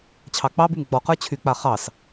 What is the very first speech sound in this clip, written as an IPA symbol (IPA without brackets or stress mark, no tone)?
t͡ɕʰ